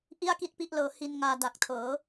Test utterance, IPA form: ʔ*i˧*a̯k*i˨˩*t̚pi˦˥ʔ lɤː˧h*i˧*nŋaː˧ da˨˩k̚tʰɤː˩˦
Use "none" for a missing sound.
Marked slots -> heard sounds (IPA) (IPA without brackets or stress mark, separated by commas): i˥˩, i˥˩, i˧